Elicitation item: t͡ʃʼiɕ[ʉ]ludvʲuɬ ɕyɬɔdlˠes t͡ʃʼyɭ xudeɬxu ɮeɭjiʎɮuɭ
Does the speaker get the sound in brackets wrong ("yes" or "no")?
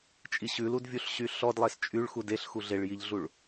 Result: no